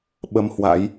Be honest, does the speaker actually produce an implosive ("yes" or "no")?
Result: yes